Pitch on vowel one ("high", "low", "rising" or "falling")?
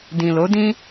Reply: low